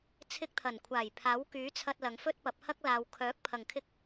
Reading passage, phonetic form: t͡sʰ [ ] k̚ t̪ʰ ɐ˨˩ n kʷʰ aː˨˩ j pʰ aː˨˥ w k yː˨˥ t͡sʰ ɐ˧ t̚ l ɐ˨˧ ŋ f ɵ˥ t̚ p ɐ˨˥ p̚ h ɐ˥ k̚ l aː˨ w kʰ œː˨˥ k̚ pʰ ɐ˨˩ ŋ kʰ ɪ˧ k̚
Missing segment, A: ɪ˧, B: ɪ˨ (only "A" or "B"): A